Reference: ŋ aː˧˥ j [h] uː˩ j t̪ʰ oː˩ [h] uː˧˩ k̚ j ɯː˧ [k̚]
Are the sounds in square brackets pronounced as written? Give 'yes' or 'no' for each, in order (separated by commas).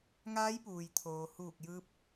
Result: no, yes, no